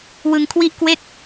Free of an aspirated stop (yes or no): no